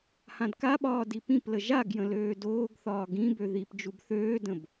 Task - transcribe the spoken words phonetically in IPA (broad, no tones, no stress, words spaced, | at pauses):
hãdkaɓɒː dipĩplə ʒaɡjə̃ løːdoːɡθɒː ɡĩbø ðip d͡ʒubθøːdə̃b